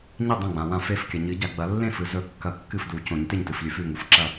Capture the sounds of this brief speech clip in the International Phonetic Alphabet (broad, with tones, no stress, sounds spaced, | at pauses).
ɲ i˥˩ dˤ õ˥˩ ɡ͡b ã˨ w ã˥˩ f e˥˩ f kʲ ɐ˨ ɲ ɨ˨˩˦ ɟ a˨ ɡ͡b ɐ˨˩˦ lː ẽ˥˩ f ɨ˨ z ɵ˥˩ kː ɐ˥˩ kː ɨ˥˩ f d u˨˩˦ c õ˨˩˦ ɲ t e˥˩ ɲ t ɨ˨ f lʲ ʉ˨˩˦ f ʉ˥˩ ŋ u˨ f ǁ ɐ˥˩